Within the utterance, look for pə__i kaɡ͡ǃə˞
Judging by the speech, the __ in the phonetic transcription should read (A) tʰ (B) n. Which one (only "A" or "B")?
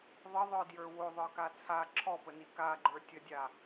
B